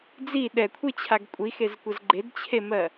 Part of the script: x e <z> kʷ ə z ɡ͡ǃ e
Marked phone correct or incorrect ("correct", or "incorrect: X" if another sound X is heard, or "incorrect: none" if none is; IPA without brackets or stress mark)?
correct